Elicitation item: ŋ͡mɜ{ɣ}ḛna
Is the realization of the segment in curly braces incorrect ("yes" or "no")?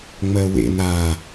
yes